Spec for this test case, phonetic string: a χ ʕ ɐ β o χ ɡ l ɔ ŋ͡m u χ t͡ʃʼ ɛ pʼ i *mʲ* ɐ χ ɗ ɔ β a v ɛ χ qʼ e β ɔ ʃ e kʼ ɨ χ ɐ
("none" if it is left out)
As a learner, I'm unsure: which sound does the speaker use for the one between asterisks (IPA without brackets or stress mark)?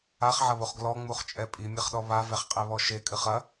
mʲ